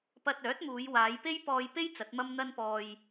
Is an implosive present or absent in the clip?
absent